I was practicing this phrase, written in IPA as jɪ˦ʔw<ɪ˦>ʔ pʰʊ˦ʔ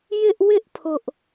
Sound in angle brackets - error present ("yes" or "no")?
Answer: no